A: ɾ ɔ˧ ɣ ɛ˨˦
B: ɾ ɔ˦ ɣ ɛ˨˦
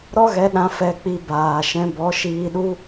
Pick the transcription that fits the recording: B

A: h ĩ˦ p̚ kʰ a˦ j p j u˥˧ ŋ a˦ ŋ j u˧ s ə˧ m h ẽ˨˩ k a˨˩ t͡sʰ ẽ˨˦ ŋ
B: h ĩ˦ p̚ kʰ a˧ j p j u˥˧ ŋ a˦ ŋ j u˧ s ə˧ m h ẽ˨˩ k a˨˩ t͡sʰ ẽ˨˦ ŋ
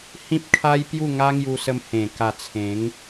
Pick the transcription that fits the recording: A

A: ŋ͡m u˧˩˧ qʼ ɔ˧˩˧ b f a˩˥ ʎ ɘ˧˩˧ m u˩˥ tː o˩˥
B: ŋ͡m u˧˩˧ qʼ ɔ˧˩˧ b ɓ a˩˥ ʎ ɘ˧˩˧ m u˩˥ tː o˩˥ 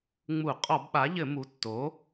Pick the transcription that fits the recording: B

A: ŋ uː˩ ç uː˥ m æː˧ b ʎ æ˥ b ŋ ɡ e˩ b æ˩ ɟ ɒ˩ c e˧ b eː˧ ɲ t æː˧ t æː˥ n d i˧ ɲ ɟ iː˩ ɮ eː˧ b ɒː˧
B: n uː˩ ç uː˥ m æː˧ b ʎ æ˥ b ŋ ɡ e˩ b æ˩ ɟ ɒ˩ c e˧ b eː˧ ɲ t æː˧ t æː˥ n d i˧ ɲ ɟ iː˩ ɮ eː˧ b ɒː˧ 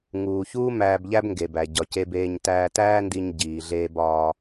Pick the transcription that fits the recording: A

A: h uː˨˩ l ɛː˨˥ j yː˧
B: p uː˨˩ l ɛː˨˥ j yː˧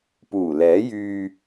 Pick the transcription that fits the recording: B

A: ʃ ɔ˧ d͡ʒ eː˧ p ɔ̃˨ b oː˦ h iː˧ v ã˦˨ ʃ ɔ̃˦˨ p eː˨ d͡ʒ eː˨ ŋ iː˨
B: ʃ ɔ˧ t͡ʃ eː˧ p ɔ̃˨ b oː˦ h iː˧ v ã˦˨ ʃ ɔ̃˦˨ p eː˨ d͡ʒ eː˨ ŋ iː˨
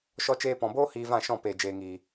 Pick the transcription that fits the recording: B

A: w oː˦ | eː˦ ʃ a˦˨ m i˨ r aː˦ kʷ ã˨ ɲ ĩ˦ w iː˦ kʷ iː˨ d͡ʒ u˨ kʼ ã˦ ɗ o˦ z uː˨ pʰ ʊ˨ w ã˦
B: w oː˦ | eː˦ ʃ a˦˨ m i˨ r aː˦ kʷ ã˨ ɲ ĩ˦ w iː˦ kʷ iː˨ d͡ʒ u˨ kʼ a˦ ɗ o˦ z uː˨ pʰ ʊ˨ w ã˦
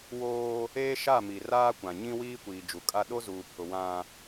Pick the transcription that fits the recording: B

